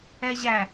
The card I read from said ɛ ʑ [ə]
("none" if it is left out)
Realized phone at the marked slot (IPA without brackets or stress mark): æ